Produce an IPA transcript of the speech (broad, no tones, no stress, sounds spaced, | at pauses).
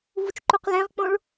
v u t͡ʃ ǃ u q l ẽ ʁ k͡p õ ɭ